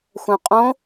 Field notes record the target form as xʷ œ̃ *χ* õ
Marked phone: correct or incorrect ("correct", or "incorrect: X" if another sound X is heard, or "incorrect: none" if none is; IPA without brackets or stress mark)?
incorrect: qʼ